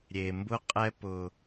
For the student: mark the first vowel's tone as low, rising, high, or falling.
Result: low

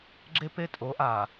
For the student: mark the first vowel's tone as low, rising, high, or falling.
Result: high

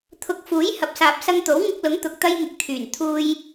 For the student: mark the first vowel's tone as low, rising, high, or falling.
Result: rising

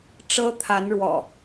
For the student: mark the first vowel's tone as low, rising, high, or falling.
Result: high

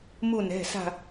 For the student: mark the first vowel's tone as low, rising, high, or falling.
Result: falling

